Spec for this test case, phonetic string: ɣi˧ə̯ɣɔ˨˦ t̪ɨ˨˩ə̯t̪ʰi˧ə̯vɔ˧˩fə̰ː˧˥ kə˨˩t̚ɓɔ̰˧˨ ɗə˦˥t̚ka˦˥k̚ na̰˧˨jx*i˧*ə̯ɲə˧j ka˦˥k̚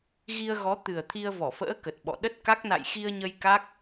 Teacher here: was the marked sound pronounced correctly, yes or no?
yes